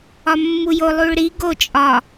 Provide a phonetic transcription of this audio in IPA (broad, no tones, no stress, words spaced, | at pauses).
ɒmːujo lˠuɭɾi ɡo t͡ʃʼɒ